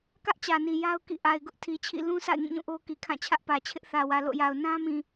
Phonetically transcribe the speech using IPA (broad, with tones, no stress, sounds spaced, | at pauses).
k ä˦ ʔ t͡ɕ ä˨ n i˨ j a˦ ʊ̯ k ḭ˦˨ ʔ a˨ ɪ̯ ɡ ʊ˦ ʔ tʰ i˨ t͡ɕʰ ḭ˦˨ l ũ˦ sʰ a̰˦˨ ɪ̯ ŋ ĩ˦˨ ɲ ũ˦˨ ʔ o˦ k i˨ kʰ ã˦˨ t͡ɕʰ ä˦ ʔ p ä˨ t͡ɕʰ ɪ˦ ʔ θ ä˨ w ä˨ l o̰˦˨ j a˨ ʊ̯ n ã˦ m ĩ˨